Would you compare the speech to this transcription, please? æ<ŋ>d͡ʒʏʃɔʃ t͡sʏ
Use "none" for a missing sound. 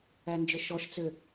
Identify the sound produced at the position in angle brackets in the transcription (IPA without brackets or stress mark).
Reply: n